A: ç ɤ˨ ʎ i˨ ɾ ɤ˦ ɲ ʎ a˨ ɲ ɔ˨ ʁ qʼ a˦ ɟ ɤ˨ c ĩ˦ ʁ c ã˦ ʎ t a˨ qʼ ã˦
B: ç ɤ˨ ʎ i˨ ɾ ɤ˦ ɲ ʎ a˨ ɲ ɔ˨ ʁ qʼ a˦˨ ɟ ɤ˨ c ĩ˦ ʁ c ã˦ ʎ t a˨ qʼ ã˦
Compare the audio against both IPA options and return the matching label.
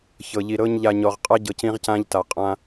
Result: A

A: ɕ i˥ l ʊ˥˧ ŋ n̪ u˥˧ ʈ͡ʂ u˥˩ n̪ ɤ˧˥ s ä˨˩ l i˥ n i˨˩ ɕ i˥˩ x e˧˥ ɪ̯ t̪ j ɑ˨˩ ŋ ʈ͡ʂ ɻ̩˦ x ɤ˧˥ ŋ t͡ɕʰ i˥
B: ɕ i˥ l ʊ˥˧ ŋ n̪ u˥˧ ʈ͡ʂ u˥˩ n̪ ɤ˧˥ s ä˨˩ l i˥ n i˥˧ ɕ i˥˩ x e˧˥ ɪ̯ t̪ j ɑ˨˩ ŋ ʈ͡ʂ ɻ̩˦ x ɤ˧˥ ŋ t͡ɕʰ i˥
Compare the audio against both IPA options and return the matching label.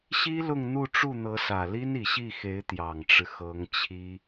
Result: A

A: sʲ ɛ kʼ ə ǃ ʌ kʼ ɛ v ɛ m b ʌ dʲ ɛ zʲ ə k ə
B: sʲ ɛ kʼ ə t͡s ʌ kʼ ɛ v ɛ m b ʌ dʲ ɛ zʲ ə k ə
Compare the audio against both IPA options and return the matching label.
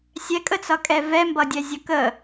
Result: B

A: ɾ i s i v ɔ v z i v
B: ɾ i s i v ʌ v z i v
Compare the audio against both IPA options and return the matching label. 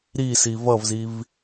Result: B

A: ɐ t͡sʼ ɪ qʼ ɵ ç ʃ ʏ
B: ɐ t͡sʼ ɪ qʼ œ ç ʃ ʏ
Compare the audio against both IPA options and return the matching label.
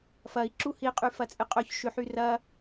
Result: B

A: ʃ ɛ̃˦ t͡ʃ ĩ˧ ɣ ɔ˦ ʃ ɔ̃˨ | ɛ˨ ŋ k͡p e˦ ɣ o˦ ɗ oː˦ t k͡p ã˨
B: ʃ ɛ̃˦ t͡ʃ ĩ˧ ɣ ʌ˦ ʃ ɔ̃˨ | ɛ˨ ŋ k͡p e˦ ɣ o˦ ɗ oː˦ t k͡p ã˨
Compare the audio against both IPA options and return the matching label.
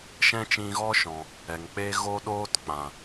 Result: A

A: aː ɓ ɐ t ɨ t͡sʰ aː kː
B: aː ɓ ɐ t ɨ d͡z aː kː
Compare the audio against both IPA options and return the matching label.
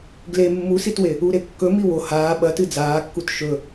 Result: B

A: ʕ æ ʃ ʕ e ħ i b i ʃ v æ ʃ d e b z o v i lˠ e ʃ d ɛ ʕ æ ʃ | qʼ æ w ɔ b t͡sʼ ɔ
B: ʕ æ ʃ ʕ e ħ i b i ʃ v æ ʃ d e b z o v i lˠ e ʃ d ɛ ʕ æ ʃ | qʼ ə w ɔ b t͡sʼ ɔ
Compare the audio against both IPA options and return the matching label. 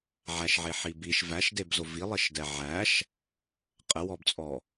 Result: B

